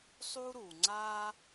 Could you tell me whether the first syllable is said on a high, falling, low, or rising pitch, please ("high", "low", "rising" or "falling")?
high